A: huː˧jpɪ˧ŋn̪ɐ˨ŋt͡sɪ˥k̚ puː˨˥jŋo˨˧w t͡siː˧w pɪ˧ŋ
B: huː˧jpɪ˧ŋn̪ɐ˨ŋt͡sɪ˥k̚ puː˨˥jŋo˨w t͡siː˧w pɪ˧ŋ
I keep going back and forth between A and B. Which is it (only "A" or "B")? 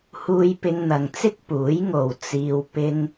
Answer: B